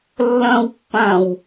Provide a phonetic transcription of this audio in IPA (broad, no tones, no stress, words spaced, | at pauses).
lːɐ̃wpːãw